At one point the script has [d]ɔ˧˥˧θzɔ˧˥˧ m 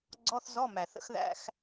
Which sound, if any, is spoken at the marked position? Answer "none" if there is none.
ɡ͡ǀ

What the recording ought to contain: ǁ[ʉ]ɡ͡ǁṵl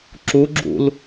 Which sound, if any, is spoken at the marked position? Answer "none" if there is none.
u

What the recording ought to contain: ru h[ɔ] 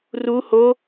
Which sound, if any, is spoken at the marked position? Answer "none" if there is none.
o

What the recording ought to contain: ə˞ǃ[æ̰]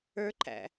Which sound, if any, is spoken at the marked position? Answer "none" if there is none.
æ̰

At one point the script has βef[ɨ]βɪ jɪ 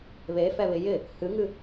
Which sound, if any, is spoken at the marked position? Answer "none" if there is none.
ɛ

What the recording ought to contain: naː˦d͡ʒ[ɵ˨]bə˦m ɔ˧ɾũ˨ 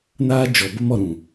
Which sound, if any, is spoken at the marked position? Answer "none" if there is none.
ɔ˨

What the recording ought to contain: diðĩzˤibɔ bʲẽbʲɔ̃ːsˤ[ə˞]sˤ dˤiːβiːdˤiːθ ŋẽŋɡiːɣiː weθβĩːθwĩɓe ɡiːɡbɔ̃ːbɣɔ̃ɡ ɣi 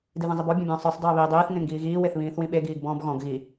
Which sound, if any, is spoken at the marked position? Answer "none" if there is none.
ə˞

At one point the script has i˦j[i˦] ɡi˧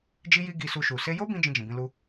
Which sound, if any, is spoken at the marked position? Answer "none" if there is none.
i˦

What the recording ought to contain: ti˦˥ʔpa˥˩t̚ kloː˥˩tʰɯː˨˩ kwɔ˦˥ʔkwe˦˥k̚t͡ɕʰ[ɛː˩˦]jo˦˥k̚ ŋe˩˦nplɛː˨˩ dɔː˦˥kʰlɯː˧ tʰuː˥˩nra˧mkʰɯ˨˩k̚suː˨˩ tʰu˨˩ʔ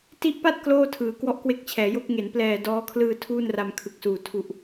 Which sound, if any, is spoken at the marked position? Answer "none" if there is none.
ɛː˩˦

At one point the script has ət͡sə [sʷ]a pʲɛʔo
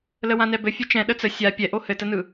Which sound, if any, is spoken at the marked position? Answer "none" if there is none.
sʲ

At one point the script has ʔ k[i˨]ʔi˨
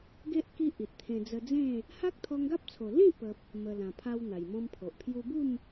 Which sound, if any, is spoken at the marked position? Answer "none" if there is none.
i˦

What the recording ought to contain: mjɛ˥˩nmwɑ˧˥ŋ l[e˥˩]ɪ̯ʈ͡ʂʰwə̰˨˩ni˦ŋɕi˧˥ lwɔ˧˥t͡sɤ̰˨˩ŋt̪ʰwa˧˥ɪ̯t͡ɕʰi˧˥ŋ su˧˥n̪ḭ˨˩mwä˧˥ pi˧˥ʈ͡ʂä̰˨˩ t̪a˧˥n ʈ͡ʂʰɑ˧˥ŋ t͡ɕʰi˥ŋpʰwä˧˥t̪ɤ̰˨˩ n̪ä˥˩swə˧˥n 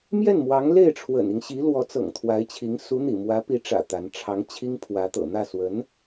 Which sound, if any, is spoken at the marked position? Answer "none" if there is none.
e˥˩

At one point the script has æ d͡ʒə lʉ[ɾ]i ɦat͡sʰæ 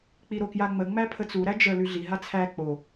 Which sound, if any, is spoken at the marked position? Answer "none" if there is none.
ɮ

